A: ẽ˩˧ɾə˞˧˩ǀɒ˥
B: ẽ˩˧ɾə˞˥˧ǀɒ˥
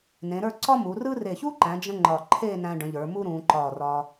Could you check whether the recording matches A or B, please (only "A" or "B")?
B